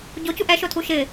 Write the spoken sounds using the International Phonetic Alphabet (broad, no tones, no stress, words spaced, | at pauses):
ɟocuʔ ɛʃotʰu ʃɪ